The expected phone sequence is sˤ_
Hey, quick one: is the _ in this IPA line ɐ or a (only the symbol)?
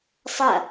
ɐ